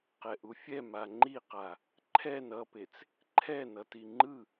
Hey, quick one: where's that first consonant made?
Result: uvula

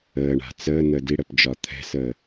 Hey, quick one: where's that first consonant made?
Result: retroflex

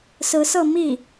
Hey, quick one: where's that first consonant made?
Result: tongue tip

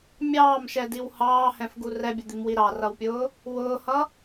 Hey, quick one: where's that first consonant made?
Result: lips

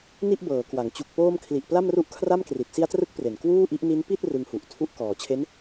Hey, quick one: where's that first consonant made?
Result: tongue tip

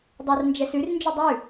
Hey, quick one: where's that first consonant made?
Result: tongue tip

